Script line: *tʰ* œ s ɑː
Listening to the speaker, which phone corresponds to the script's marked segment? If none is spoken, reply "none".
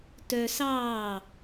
t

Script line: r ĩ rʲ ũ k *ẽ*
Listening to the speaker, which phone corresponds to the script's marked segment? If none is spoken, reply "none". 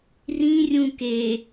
e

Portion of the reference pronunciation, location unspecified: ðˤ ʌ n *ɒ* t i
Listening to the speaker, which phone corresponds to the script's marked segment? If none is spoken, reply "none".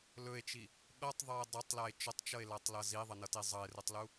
ʌ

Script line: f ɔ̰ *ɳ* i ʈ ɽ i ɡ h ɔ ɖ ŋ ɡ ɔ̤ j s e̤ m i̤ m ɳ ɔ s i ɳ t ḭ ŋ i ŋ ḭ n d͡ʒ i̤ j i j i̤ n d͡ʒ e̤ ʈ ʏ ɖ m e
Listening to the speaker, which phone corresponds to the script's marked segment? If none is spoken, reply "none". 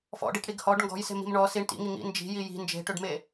ɖ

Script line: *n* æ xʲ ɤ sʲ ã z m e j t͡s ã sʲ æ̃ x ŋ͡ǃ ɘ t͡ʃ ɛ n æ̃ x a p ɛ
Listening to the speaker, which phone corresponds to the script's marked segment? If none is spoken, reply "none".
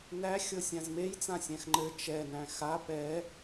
n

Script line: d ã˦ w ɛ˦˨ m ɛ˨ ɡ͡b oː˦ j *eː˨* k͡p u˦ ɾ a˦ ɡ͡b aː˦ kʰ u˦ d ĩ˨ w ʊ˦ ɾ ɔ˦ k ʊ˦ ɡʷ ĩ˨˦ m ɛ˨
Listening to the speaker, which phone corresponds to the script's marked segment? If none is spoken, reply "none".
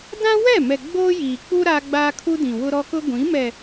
iː˨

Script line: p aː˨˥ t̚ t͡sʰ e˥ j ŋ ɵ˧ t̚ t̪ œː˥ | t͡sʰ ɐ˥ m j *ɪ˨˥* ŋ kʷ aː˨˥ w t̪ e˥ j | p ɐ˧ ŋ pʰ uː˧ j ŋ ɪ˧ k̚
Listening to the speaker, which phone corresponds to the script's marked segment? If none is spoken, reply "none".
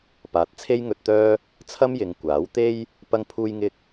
ɪ˨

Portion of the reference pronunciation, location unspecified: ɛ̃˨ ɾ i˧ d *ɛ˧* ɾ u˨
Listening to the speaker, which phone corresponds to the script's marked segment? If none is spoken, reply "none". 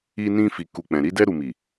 ɛ˧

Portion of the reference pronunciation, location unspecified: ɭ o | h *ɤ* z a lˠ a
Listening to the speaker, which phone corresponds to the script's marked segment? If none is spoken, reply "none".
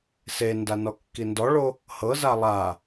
ɤ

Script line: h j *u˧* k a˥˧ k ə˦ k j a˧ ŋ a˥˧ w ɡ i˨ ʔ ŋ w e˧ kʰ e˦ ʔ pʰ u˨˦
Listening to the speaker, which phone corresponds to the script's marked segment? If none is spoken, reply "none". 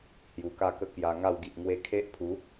u˨˩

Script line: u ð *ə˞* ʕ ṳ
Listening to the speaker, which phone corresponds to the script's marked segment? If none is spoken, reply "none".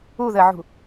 ə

